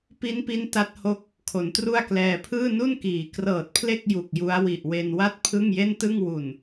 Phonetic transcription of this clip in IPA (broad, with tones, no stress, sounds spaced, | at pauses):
p i˦˥ n p i˦˥ n t a˦˥ t̚ h o˦˥ k̚ | kʰ o˩˦ n t r u˥˩ a̯ k l ɛː˧ pʰ ɯː˥˩ n u˥˩ n k iː˩˦ k r ɤː˨˩ t̚ pʰ l e˥˩ k̚ j u˨˩ k̚ j u˦˥ a̯ w i˨˩ ʔ w e˧ n w a˥˩ t̚ pʰ ɯ˥˩ ŋ j e˥˩ n t ɯ˥˩ ŋ w u˨˩ n